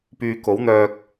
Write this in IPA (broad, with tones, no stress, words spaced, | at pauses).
pyː˧ ko˨˥wn̪œː˧k̚